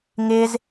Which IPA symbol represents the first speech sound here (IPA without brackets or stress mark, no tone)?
ŋ